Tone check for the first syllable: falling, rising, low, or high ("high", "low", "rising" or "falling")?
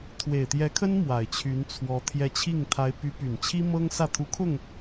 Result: low